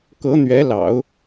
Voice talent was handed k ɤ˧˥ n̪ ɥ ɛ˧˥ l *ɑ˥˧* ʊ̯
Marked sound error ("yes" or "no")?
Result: yes